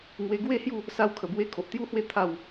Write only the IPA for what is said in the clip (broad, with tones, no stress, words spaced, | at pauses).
ŋwe˧ɡwe˥˧ hju˥˧ | sa˧wkʰə˨˩bwe˧ kʰo˨ʔt̪ju˦hwe˦ t̪ʰa˥˧w